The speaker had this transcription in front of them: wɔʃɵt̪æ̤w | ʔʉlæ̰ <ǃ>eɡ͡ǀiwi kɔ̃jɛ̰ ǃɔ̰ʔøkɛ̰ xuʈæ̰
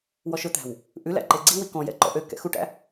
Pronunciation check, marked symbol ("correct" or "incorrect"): correct